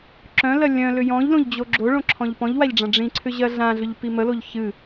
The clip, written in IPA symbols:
ǁœ̃lɜ lʲœ̃lʏ jɔ̃ʎlõʎd͡ʑo ɡ͡ǁoɭõǁʰɔ̃ʎ pɔ̃ʎwaʎɖ͡ʐã ɖ͡ʐĩǀʰʏʑɜ ɮãɮʏʎpi məloʎ çɨ

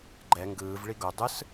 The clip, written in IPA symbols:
ɡ͡ǃɛ ŋɡɯːvɭi ɡo dˤɯs

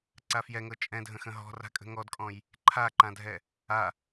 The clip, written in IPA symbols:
ǀafjɛŋɤ t͡ʃʼɛ̃dʱə̃xə̃ ɦɔ̤ ra̤kʼə̤ŋɔdkʼɔ̃j | ǃʰaǃãdʱɛ | a

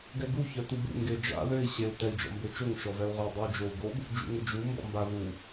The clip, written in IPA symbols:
ɡɛɡu çœtubṵ ŋɡed͡ʒa̰ ðøi̯ ɕeu̯ tɛi̯d͡ʒɔ̰mbøt͡ʃoŋ ʃɔvɛu̯ʁʷɛ dˤyu̯d͡ʒou̯ɡoɡ | d͡ʒṵŋəd͡ʒu mbɔ̰mba ðu

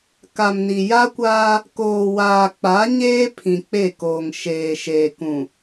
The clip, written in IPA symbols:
ka˨mni˨ ja˦kʷaː˦ | koː˨waː˨k͡pa˨˦ɲeː˦ pʰĩ˨k͡pe˦˨koː˨ŋ ʃeː˨ ʃeː˨kũ˨

